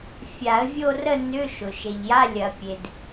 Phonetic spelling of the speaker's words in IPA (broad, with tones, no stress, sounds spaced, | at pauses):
fʲ a˨˩˦ ə̯ vʲ o˥˧ r ə˥˧ n ʏ˧˥˧ ʃ ʊ˩ ʃ e˩ ʎ j a˧˥˧ lʲ ɐ˨˩˦ pʲ e˩ d